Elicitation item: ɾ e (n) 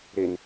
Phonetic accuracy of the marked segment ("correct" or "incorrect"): correct